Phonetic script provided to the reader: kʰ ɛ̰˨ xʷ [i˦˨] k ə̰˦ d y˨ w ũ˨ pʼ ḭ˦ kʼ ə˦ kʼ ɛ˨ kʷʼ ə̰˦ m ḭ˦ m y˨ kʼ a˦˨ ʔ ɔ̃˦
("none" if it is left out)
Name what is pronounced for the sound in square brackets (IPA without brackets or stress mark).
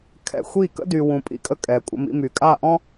i˦˨